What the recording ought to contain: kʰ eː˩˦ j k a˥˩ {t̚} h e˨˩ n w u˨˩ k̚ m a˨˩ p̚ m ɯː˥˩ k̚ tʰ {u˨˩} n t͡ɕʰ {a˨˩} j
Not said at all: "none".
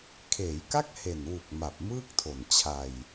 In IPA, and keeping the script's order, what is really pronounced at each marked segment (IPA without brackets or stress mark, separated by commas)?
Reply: k̚, o˨˩, a˧